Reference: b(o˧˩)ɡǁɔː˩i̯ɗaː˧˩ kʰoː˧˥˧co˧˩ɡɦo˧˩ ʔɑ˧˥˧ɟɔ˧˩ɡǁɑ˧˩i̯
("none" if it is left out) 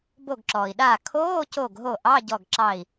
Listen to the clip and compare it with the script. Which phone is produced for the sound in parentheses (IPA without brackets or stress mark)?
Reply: o˧˩